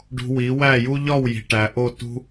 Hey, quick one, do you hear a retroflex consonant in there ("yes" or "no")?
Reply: yes